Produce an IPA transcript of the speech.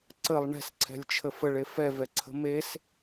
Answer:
ǀəlˠ ɳɛ̤sǀʰɛ̤lʲt͡ʃʰə fəɭe fɛvɛǀʰə̤ mes

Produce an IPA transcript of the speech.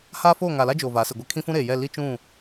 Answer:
ha˦ foː˦˨ŋa˨la˦ d͡ʒoː˨va˨˦sɪ˨ɡʷɛ˦ kʰĩ˦fũ˦ɾeː˨jɛ˦˨ li˦t͡ʃũ˦˨

